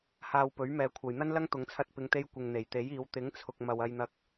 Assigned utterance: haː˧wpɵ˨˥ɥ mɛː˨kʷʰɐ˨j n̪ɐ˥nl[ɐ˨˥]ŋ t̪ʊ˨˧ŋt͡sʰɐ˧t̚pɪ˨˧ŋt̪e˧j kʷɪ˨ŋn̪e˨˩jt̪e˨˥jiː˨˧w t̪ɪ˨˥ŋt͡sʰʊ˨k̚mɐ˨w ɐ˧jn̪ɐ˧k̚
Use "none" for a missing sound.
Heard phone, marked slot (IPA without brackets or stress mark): ɐ˥